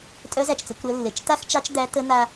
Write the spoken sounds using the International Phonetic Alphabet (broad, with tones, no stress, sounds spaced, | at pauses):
tʼ œ˧˥ z æ˩ t͡ʃ t͡s ə˩˧ kʷ ɾ əː˧ lː e˩ t͡ʃ t a˥ x t͡ʃ ɑ˧˥ t͡ʃ d̪ æ˧˥ t ə˧˥ n̪ a˧